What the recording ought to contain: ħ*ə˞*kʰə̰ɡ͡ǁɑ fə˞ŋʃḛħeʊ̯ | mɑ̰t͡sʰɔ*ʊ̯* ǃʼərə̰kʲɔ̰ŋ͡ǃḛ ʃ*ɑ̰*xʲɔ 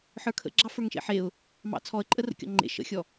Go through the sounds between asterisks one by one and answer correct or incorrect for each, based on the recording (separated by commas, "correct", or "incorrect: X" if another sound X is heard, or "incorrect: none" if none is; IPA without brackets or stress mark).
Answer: correct, incorrect: ə̯, incorrect: ə̰